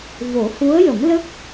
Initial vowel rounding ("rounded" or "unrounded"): rounded